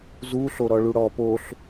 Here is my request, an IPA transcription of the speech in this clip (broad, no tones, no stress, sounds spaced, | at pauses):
z u ɬ o ɾ ɔ ɭ u ɽ ɔ p o ɬ